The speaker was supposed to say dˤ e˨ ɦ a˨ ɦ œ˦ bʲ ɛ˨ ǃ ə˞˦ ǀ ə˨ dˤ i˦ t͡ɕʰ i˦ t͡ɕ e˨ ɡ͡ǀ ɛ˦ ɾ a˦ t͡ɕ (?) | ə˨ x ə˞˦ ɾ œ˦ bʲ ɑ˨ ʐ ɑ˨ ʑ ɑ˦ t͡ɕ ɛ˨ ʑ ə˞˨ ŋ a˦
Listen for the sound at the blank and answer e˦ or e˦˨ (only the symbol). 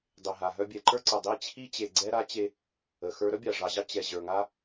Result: e˦